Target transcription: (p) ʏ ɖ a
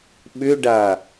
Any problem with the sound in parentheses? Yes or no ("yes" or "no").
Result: yes